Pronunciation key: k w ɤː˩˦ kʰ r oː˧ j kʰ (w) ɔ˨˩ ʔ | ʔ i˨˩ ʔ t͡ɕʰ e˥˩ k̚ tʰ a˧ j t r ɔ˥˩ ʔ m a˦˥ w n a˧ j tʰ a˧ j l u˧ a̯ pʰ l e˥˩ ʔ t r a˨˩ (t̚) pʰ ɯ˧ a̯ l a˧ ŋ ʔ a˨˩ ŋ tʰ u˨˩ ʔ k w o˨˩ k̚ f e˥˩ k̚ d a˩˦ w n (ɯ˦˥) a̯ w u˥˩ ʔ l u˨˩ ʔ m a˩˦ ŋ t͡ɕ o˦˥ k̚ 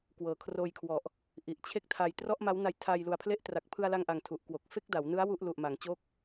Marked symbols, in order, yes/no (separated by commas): yes, no, yes